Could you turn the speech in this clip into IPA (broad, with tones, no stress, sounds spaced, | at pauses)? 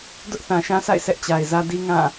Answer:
d ʊ˦ ʔ θ ã˨ ʃ ã˦ s a̰˦˨ ɪ̯ sʰ ɛ˦ ʔ t͡ɕ a˨ ɪ̯ z ä˦ d i˦ ŋ ã˦˨